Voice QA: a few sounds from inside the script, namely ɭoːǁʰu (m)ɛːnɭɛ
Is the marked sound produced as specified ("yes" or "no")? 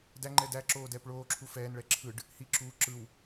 no